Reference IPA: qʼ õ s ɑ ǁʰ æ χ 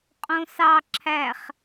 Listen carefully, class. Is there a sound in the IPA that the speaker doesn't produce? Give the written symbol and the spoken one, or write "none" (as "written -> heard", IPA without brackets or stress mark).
none